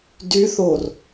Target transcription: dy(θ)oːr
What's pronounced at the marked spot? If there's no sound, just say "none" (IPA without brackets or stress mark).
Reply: θ